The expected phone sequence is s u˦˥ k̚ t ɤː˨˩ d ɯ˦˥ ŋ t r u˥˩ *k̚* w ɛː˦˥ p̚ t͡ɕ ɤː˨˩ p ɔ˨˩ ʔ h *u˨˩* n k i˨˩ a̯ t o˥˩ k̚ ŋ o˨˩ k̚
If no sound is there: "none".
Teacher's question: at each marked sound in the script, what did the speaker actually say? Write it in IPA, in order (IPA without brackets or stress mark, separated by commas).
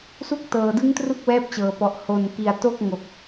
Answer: k̚, o˨˩